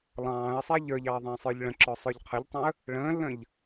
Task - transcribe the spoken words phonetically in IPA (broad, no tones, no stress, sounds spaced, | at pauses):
lˠ ɑ̃ː ə̯ sˤ ɛ ʎ ə˞ ʎ ɑ ə̯ ðˤ ə̃ː sˤ ə˞ ʎ ɭ ə̃ ǁ ɔ sˤ ə˞ ʎ qʰ ə ʎ tˤ ɑ̃ ə̯ | ɭ ə̃ː lː ə̃ː ʎ